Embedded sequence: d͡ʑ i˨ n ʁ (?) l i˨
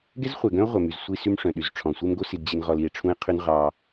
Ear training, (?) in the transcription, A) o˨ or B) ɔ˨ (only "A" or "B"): B